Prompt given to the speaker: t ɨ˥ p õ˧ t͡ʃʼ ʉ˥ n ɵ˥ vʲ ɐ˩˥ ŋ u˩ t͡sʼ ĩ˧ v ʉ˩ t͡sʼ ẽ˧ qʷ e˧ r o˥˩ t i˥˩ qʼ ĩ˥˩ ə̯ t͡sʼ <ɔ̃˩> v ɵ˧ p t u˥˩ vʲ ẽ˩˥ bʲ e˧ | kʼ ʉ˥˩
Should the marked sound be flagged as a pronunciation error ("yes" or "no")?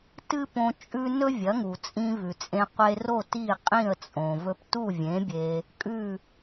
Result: yes